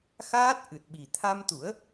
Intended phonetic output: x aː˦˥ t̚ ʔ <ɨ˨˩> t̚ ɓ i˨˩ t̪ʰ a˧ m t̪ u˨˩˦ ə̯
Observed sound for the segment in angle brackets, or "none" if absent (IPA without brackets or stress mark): ɨ˨˩